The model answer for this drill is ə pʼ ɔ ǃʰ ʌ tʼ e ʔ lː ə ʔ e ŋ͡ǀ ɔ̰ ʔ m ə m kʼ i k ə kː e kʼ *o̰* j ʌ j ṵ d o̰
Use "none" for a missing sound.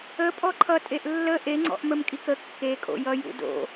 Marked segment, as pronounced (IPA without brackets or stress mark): o̰